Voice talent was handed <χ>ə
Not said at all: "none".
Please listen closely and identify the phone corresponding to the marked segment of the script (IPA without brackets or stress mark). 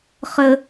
χ